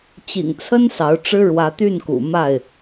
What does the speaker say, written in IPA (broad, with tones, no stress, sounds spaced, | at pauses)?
t͡ɕ ḭ˨˩ ŋ t͡sʰ ə˦ n s ɑ˨˦ ʊ̯ ʈ͡ʂ ɻ̩˦ ɻ w ä˨˦ t̪ y˥˨ n k ṵ˨˩ m a˥˨ ɪ̯